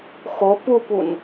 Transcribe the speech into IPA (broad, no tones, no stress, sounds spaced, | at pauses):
x o p u p u n